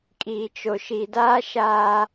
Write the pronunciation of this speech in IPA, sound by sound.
kʼiː˨t͡ʃo˨ʃi˨daː˦ ʃaː˦

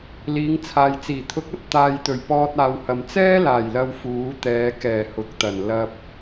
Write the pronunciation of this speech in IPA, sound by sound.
liː˨˧ŋt͡sʰaː˨jt͡siː˨˩ t̪ʰʊ˨˥k̚ɐ˧t̚ t̪aː˨jt̪ɵ˨˩ɥpɔː˧t̚ aː˨whɐ˨m t͡sɛː˥laː˨˩jlɐ˨w fuː˨˥t̪ɛː˨˧ kɛː˨˩ hʊ˨˥k̚t̪ɐ˨˩n lɐ˨p̚

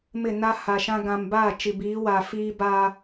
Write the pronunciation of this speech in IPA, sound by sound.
mɪ˦˨na˦ha˨ ʃã˦ ɡã˨mbaː˦˨ t͡ʃi˨biː˨˦ wa˨fiː˦ ba˦

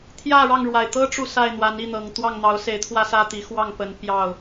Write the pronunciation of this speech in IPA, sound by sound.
t̪ʰjä˥˨ɻɑ˥˨ŋɻwa˨˩ɪ̯ t̪ɤ˦ʈ͡ʂu˨ sa˥˨ɪ̯n̪wa˨˦n i˥˨n̪ɤ˨˩ŋ t̪wɑ˥˨ŋn̪ɑ˨˦ʊ̯se˨˦ɪ̯t̪ʰwä˥˨ sä˥˨t̪i˨˦xwɑ˥˨ŋpə˨˦n pjɑ˥˨ʊ̯

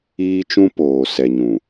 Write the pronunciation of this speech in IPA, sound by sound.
iː˦t͡ʃũ˦ poː˨ sɛ˨ɲũ˨

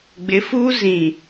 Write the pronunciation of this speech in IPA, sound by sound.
ɡ͡bɪ˨˦ fuː˦ zĩ˨

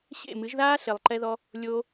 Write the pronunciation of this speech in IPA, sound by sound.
ɕḛ˦˨mɨ˨˦ʒðaː˦ ɬe˨lˠǃɛ˧ðɔ˧ | lʲoː˧

